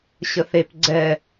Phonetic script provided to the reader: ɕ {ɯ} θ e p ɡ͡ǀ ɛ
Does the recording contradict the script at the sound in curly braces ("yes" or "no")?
yes